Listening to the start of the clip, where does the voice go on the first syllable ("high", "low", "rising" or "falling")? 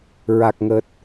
low